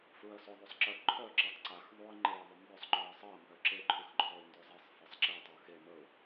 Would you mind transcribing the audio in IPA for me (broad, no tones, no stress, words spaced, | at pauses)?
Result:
fɹɜsʊ ðˤʉsˤǁɜ ǃʰœ ǁetˤǀax ðˤuɪ̯ŋ͡ǃeə̯ ðˤʊmbœsˤ ŋ͡ǃœə̯sˤɜ mbœǁe ǃʰʉxǃʰɔɪ̯ndʉzˤesˤ fɜsˤǁe tˤeə̯xe məʊ̯